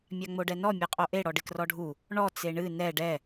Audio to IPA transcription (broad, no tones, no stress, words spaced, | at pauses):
mʲaŋ͡moɖɛnɔ mʲɛqʼoʔe ɽɔɖɪkrɔɖʱu | ɳɔ t͡seɳɨ nɛ ɖɛ